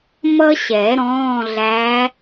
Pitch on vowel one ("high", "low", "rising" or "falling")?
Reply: high